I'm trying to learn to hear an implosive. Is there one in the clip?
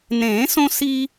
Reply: no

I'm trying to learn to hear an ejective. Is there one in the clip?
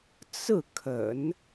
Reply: no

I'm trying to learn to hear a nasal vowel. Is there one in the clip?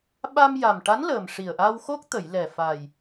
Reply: no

